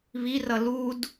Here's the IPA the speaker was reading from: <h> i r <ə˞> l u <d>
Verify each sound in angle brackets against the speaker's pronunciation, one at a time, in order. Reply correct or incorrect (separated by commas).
incorrect, incorrect, correct